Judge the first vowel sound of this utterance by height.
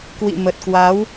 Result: high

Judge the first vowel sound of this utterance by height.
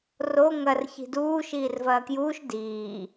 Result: mid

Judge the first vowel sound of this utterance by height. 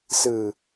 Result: high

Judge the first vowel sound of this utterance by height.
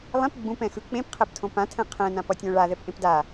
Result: mid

